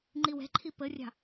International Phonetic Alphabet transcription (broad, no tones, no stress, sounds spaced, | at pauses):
ŋ͡ǃ i w ɛ̤ ǃʰ i p ə rʲ ɑ̤